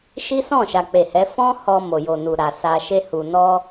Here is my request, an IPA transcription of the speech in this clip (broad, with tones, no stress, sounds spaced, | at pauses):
ʃ i˦ s ɔ̃˦˨ ʃ a˨ k͡p e˨ h ɛ˨˦ f ɔ̃˦ h ɔ˧ m o˨ j o˨ n u˨ ɾ a˨ s a˧ ʃ e˦ h u˧ n ɔ˦